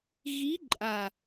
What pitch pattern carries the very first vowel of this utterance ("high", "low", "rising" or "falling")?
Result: rising